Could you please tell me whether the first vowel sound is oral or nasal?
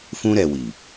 nasal